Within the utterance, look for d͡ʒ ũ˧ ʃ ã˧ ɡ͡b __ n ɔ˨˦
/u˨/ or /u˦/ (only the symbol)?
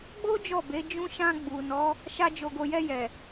u˨